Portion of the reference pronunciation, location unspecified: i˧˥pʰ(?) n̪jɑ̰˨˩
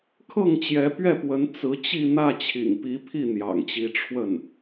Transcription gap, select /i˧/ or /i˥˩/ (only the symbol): i˥˩